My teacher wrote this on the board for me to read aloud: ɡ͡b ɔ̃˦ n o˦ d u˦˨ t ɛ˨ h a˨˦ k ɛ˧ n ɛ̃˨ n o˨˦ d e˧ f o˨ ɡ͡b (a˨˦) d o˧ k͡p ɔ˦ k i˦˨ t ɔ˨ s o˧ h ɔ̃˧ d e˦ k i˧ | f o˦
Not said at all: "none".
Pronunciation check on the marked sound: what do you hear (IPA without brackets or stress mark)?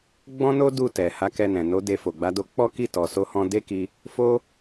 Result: a˨˦